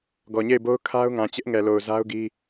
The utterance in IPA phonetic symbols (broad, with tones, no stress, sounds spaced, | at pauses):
ɡ ɔ˨ ɲ e˦˨ ɪ̯ b o˦ ʊ̯ kʰ a˦ ʊ̯ ŋ ã˨ t͡ɕ ɪ˦ ʔ ŋ ɛ˨ l o˨ ʊ̯ z a˦ ʊ̯ ɡ i˦